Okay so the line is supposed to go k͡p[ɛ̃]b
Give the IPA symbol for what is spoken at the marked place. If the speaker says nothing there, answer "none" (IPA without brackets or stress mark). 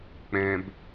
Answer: ɛ̃